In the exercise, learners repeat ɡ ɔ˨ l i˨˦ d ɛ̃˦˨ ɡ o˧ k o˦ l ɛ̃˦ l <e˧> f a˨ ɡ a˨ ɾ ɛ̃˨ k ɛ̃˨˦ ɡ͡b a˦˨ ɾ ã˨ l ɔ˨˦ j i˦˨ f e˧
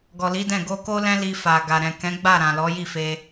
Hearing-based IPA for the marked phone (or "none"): i˧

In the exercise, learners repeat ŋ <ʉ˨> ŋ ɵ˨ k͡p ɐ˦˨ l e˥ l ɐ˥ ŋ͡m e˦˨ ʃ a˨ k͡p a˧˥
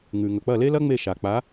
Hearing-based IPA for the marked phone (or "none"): ʉ˨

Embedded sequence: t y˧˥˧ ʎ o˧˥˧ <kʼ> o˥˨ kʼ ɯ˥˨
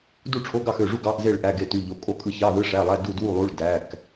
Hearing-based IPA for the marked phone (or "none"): kʼ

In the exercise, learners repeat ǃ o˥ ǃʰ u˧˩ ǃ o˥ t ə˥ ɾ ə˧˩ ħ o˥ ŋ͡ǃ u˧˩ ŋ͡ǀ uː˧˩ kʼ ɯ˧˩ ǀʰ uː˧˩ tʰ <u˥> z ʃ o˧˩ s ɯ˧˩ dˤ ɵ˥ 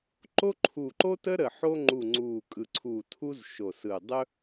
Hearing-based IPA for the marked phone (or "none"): u˥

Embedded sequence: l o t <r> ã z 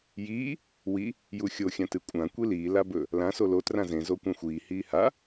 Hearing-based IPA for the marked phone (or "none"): r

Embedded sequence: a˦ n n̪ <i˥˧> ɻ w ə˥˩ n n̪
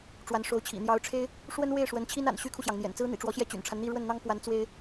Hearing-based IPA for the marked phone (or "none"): i˥˧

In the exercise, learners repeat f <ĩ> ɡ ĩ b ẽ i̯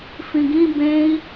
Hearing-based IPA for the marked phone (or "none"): ĩ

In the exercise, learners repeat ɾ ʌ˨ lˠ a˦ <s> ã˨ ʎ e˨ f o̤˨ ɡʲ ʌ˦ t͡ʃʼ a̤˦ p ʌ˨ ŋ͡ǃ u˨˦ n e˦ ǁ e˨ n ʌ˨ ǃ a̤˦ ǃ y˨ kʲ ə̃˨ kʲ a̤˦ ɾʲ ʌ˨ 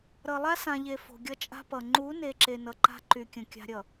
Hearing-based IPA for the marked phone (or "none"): s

